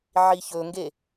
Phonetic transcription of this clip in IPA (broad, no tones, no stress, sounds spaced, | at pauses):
ʕ i ç ɵ ŋ ɡ e